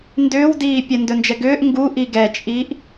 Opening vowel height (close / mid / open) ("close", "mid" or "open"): close